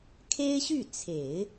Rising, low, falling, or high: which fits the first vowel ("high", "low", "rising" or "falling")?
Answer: high